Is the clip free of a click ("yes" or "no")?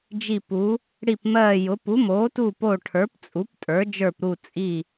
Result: yes